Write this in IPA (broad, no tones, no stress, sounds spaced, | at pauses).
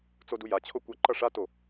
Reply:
t͡s o d u j a t͡ɕʰ o kʷ ʌ ǃ ʌ ʂ a t o